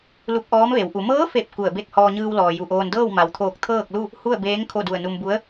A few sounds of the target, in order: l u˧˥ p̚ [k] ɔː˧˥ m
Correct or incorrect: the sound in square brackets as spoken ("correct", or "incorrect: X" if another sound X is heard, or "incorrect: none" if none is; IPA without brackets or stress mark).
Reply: incorrect: ʔ